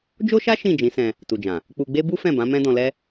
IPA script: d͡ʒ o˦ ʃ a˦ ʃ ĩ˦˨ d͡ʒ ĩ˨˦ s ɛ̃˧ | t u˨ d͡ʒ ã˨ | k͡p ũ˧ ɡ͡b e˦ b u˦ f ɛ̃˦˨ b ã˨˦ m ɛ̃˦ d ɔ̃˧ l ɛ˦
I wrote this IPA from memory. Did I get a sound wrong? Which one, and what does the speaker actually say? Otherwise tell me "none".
ũ˧ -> u˧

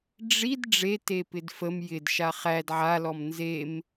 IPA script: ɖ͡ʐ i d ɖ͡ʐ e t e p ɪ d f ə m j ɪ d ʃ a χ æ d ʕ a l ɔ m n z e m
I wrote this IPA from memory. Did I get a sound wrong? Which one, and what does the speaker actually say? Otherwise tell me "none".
none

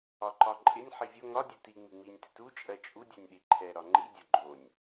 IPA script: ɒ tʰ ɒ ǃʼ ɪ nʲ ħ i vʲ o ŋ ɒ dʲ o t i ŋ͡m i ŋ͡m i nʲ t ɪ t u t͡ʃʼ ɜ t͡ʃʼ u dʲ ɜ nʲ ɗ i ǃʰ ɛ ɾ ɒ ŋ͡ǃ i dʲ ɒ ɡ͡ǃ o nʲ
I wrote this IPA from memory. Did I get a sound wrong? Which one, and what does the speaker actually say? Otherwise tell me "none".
tʰ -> ǃ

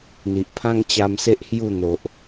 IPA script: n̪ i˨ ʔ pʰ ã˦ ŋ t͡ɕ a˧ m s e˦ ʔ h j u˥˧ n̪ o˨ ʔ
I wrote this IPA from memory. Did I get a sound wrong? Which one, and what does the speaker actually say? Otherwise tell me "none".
none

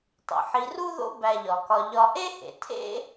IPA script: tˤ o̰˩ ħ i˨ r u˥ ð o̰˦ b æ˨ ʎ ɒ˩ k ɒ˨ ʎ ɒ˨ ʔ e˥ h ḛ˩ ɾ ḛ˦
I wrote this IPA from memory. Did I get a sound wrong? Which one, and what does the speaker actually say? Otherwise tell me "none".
ɾ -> tʰ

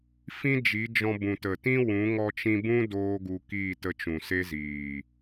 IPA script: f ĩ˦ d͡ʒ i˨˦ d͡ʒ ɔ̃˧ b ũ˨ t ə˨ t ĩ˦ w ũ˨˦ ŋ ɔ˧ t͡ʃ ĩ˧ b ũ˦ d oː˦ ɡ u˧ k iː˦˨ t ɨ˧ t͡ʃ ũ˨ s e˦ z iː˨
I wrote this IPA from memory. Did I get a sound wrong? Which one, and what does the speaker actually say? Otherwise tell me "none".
ɨ˧ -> ə˧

